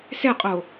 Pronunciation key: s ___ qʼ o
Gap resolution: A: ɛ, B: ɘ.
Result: A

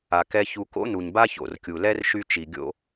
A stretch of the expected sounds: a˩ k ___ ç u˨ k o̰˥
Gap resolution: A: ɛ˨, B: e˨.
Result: A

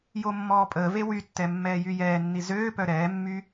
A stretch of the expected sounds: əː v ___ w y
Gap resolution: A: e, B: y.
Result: A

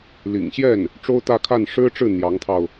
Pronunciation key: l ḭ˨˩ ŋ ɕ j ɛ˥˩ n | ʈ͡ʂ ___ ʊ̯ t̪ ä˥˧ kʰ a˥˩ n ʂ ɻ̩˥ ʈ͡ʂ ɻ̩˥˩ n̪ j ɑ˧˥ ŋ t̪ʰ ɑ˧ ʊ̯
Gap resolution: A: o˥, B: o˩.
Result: A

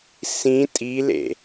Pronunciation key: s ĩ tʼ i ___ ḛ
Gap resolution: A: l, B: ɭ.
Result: A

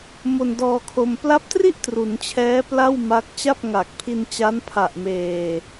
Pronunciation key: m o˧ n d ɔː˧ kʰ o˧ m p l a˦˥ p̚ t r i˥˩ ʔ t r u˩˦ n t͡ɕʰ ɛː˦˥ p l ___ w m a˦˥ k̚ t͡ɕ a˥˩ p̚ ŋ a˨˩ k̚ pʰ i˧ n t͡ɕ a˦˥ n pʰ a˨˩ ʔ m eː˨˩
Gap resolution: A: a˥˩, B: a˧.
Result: A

